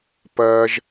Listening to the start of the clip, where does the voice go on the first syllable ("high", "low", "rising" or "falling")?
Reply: low